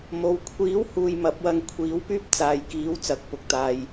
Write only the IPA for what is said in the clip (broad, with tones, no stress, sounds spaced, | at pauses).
m o˨˧ w kʷʰ iː˨˥ w h uː˨ j m ɐ˨˥ p̚ w ɐ˧ ŋ kʷʰ iː˨˥ w p yː˥ p̚ t͡s aː˨ j k iː˨˥ w t͡s ɐ˨˥ k̚ p ʊ˨ k̚ t̪ aː˧ j